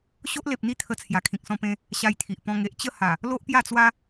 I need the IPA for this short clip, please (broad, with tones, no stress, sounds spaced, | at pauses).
ɕ o˦ ʔ l e˨ p̚ n̪ i˦ t̪ʰ ə˧ t͡sʰ j a˨˩ kʰ ĩ˨ k̚ s ɔ̃˧ p ẽ˧ | ɕ a˧ j t̪ʰ i˨ ʔ p ɔ̃˧ ŋ e˨ ʔ t͡ɕ ə˥˧ h a˨˩ | l o˦ ʔ p j a˥˧ t͡s w a˦